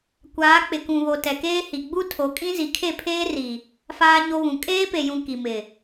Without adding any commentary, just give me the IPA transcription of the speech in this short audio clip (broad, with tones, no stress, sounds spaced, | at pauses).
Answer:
kʷ aː˨˦ k͡p ɪ˨ k ũ˨ β o˨ t ɛ˨ k eː˦ h i˨ ɡ͡b u˦ tʰ o˨˦ kʼ ĩ˦ z i˨ kʰ e˦˨ pʰ eː˦ r i˨ | f aː˦ ɲ o˦ β ũ˨ kʼ eː˦ p e˨ j ũ˨ k i˨ m ɪ˨